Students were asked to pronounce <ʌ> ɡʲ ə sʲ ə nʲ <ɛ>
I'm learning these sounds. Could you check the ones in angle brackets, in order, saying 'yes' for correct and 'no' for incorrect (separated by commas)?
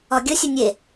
no, no